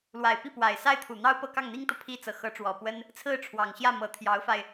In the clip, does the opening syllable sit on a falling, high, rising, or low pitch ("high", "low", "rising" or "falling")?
low